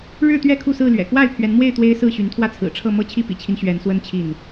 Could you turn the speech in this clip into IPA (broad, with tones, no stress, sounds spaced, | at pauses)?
ɻ ɻ̩˥˨ t̪ ɥ ɛ˥˨ kʰ u˥˨ s ɹ̩˥˨ l ɥ ɛ̰˨˩ k w a˥˨ ɪ̯ pʰ ɥ ɛ˨˦ n m w e˥˨ ɪ̯ t̪ w e˦ ɪ̯ s ɹ̩˥˨ ɕ y˨˦ n t̪ʰ w ä˥˨ t͡sʰ ɹ̩˨˩ ʈ͡ʂʰ ɤ˥˨ m ɤ˥˨ t͡ɕʰ i˥˨ p ḭ˨˩ t͡ɕʰ i˦ n ɕ ɥ ɛ˨˦ n s w ə˦ n t͡ɕʰ i˥˨ n